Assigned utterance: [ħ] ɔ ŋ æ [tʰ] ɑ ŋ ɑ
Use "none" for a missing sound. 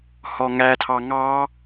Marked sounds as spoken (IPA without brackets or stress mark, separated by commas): h, tʰ